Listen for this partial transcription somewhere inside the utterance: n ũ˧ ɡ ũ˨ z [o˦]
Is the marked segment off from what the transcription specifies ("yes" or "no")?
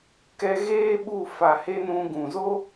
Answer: no